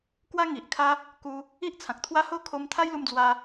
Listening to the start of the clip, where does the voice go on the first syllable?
high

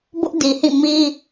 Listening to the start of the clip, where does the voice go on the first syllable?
high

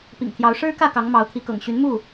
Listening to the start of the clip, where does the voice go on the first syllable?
low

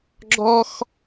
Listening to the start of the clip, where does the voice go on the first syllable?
high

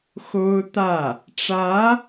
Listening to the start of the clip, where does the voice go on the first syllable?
high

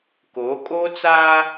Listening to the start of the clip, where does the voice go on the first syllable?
rising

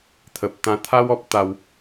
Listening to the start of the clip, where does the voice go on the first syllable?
low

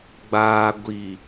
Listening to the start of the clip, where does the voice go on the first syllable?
low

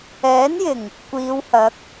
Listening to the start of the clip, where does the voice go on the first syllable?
rising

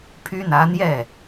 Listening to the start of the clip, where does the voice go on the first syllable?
high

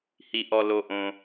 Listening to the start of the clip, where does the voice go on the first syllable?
low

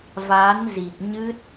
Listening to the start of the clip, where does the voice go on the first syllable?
rising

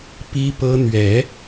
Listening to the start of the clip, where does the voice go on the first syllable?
high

